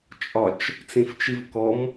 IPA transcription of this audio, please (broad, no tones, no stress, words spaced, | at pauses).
t͡ʃʼɒt͡ʃ | t͡sĩft͡ʃivkɔm